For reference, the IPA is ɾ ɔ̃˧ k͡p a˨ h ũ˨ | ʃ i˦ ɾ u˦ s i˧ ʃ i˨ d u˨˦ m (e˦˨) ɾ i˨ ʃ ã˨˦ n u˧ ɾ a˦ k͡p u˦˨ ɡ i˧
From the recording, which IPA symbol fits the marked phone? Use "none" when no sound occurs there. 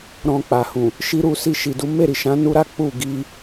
e˦˨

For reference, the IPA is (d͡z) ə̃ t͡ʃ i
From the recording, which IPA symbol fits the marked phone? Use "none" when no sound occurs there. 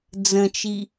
d͡z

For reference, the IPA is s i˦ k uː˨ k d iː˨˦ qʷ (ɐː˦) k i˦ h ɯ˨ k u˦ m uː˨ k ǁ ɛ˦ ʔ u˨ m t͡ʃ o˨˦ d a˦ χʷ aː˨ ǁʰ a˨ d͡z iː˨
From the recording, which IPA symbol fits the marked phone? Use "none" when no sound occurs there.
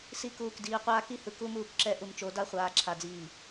aː˦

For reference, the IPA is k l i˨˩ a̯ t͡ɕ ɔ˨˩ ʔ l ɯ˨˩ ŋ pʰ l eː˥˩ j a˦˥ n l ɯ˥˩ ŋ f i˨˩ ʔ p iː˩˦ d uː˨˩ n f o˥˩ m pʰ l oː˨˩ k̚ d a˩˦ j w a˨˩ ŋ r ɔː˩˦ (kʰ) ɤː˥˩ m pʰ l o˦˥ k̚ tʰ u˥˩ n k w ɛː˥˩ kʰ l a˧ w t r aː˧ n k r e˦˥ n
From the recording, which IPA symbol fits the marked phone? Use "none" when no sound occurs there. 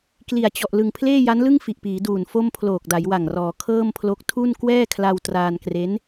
kʰ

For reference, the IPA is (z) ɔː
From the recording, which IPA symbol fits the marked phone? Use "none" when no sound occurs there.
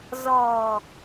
z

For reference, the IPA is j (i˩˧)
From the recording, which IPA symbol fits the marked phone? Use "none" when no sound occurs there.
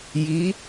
i˩˧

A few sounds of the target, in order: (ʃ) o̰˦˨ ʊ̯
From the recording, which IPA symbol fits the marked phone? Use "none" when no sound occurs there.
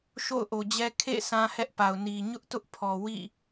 ʃ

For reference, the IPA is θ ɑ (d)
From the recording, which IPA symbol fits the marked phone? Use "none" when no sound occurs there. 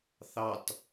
t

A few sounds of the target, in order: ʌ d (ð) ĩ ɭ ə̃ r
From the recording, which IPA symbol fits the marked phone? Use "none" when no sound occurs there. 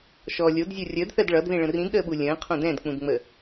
ð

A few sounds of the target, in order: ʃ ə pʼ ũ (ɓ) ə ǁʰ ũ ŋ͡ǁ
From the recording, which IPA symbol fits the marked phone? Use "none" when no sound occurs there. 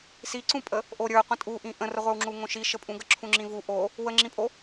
ɡ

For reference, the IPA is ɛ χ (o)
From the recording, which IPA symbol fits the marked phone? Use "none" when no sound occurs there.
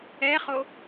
o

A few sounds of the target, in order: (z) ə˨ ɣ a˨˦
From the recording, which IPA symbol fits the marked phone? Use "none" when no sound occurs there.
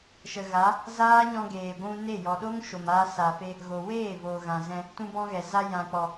ʃ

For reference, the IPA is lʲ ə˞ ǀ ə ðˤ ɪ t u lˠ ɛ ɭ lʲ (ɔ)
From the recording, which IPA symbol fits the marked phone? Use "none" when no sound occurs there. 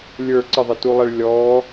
ɔ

